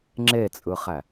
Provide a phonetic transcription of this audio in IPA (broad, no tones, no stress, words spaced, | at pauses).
ŋ͡ǁet͡sʼɯχæ